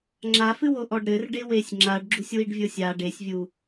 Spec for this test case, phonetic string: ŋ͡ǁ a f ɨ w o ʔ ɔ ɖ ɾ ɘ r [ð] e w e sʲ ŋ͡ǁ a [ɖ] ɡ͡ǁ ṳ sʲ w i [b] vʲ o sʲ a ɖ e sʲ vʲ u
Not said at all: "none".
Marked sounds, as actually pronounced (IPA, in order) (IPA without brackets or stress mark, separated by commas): ɖ, ɖ, ɖ